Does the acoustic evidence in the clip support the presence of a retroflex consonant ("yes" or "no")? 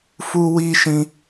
no